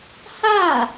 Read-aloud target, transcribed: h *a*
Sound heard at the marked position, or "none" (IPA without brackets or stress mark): a